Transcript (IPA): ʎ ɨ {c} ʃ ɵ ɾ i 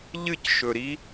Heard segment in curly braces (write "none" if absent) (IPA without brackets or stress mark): c